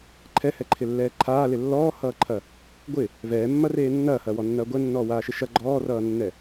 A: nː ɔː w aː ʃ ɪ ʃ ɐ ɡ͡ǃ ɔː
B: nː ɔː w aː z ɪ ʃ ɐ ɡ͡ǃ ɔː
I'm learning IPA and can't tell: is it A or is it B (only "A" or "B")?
A